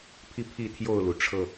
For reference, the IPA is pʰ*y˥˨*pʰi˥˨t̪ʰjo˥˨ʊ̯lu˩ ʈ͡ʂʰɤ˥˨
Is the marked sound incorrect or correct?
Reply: incorrect